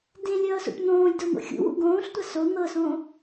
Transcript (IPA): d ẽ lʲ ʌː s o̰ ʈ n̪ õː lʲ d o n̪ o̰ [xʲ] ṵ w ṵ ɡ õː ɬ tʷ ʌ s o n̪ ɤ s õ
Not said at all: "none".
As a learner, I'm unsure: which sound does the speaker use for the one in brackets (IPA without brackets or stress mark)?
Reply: xʲ